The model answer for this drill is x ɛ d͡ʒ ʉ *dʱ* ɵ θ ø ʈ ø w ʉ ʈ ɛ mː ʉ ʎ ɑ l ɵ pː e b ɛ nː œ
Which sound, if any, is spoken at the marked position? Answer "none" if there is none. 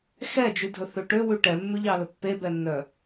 dʱ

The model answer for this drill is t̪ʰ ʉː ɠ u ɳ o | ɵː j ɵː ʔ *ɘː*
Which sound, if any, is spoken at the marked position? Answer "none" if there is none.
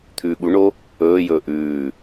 ʉː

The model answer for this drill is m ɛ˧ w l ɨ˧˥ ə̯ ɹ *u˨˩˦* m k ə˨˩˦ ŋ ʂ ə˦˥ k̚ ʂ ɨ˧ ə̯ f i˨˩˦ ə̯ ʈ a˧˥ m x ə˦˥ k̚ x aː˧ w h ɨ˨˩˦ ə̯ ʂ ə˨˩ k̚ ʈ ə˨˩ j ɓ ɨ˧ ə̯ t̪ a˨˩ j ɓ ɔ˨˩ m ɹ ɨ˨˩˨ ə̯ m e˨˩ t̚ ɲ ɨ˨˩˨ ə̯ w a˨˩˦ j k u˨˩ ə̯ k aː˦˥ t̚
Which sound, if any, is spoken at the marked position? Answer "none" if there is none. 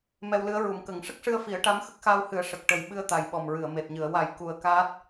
u˨˩˦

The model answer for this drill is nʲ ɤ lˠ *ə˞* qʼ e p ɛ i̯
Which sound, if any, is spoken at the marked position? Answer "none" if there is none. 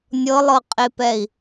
ɤ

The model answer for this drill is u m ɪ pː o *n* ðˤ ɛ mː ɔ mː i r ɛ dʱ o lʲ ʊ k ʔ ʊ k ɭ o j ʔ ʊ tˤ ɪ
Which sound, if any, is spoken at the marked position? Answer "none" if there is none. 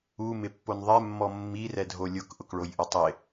n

